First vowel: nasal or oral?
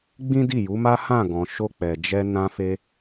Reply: nasal